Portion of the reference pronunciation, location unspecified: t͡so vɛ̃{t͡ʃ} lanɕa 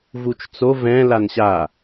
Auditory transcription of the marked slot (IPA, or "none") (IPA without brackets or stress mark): none